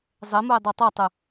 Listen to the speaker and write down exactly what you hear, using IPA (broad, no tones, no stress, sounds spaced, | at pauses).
zˤ e m u e̯ dˤ u tˤ ɛ tˤ ɯ